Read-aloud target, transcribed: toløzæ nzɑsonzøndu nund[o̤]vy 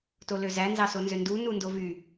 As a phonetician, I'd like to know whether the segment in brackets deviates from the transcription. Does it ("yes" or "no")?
yes